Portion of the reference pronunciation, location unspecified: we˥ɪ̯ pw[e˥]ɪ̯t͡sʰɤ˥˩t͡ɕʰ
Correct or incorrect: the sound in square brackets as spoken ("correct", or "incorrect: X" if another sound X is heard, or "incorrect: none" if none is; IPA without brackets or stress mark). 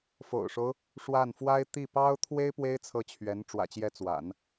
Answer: correct